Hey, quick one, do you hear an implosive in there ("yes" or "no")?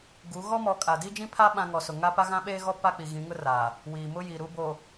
yes